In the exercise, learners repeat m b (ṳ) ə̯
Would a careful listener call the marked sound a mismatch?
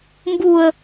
yes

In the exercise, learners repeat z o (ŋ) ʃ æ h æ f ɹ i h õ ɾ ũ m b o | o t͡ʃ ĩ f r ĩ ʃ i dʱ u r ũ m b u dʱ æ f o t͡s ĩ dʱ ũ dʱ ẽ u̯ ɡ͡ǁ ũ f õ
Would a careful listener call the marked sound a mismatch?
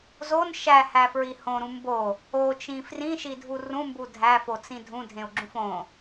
yes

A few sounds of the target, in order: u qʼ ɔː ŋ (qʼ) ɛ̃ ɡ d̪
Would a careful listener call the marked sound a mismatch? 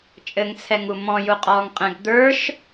no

